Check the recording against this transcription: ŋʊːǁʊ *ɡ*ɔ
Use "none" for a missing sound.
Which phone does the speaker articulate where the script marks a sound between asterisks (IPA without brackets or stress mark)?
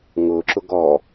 ɡ